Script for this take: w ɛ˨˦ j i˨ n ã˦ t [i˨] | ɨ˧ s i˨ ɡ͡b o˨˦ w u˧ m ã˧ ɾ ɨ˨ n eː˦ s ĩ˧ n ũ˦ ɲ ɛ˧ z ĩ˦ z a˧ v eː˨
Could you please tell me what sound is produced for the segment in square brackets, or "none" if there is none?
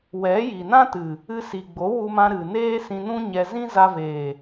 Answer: ɨ˨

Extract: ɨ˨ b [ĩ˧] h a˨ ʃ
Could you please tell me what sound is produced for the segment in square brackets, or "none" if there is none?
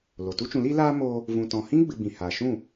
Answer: ĩ˨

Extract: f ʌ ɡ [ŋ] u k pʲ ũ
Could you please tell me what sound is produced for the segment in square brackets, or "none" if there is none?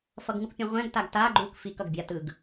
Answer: ŋ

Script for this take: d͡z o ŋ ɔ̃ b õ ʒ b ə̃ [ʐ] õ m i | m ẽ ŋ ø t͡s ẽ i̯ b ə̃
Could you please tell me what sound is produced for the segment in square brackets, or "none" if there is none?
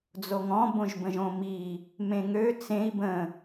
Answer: ʒ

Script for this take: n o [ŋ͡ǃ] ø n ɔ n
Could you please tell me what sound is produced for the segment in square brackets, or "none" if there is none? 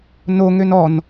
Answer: ŋ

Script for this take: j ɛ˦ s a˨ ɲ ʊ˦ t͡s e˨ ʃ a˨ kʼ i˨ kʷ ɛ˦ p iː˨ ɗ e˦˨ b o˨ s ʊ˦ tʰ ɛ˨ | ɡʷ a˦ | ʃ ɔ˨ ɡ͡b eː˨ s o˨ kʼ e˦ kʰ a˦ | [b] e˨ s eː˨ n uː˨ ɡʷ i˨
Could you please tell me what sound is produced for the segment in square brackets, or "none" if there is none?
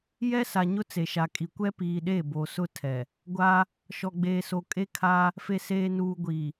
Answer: f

